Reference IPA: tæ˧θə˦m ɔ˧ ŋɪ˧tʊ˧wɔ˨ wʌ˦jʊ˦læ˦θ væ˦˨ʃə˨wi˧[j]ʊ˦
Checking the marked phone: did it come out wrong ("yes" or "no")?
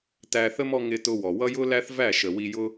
no